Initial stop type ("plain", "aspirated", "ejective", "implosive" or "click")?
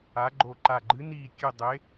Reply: click